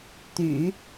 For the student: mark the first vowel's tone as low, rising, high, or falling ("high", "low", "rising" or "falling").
low